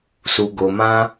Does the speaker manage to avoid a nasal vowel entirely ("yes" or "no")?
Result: no